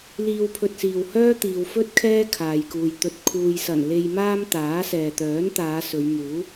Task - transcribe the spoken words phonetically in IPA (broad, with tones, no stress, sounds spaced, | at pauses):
l iː˧ w pʰ ɵ˧ t̚ s iː˨ w h œː˥ t̪ iː˨ w f ɵ˥ t̚ kʰ ɛː˥ kʰ aː˨ j k uː˨ j t̪ ɵ˨ t̚ kʰ uː˨ j s ɐ˨˩ n l e˧ j m aː˥ m t̪ aː˨˥ s ɛː˨ t̪ œː˨˥ n t̪ aː˨˧ s ɵ˨˧ ɥ m uː˨˥